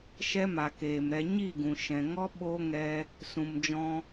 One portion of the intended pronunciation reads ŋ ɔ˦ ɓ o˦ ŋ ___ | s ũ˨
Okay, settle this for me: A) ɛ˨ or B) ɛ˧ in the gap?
B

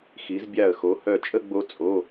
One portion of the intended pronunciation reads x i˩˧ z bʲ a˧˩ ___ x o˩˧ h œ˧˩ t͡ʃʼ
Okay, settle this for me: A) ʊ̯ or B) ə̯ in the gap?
B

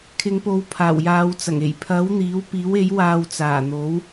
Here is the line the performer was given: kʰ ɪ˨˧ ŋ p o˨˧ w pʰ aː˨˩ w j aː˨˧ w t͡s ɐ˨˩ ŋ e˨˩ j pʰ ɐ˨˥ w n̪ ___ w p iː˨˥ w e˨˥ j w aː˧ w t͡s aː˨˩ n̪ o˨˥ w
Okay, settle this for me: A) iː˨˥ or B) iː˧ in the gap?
A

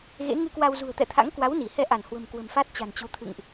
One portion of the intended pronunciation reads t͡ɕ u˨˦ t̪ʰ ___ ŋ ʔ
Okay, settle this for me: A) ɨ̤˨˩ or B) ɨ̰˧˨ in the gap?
B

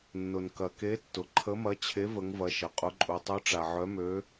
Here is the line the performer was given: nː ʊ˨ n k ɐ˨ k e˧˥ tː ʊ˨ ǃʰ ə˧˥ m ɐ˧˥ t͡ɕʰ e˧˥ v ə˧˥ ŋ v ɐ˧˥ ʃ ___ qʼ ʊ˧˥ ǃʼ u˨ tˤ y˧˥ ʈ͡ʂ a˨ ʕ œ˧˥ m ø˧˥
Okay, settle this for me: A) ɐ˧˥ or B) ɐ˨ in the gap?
B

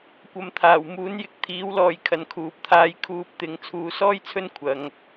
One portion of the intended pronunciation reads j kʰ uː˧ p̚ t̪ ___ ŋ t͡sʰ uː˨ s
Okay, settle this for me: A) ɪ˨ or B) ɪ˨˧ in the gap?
B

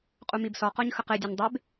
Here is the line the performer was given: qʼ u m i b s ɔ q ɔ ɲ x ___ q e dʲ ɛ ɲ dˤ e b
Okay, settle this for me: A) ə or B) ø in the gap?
A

